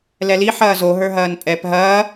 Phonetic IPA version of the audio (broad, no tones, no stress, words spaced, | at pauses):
lɛli ħɐːzo ɦə˞ɦɐːnpʼɛp ɦɐː